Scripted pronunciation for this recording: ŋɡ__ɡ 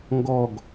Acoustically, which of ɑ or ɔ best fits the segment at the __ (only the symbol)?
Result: ɔ